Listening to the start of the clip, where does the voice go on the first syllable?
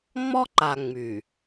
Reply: high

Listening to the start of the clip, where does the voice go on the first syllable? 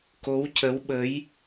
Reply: rising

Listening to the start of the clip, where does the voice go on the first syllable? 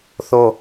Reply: falling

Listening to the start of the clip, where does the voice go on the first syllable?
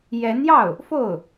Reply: rising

